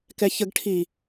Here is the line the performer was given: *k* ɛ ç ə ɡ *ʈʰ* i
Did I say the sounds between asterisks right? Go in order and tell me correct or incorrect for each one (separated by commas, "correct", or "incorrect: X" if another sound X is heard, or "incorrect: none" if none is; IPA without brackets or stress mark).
correct, correct